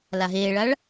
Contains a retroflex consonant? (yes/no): yes